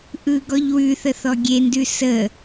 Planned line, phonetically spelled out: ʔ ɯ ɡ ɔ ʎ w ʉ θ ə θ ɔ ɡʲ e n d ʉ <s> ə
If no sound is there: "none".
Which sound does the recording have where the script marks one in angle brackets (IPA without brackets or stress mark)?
s